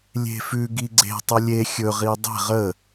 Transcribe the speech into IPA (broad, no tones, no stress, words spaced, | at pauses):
lʲe̤fʉ ɡiɡ͡ǀe̤ tˤəlʲe xʲɵ ʁidˤe̤ʁ ə